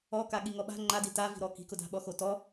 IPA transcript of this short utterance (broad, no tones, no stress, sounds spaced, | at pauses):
ɔ k a ɠ i ŋ ɔ ɓ a̤ ŋ͡ǃ a d i t a v i̤ ɾ ɔ k i̤ k ʊ d a̤ ɓ ɔ x o t ɔ